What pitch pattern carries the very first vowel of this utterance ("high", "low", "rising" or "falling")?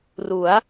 rising